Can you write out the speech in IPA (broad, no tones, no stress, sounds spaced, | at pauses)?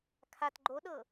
kʰ a t ɡ͡ǃ o ɗ ɤ